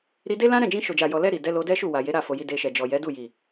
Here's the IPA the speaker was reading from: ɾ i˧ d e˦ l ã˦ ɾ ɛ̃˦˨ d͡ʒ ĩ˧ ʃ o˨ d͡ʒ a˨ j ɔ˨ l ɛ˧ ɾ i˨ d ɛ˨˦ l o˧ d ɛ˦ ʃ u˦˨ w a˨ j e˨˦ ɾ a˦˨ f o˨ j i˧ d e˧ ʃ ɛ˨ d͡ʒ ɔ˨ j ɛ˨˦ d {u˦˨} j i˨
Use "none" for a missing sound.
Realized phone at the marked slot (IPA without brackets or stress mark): u˦˨